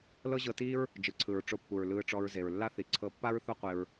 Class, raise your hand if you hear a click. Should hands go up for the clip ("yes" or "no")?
yes